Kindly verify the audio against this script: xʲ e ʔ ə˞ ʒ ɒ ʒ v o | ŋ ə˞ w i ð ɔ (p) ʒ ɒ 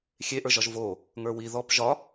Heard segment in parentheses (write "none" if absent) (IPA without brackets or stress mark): p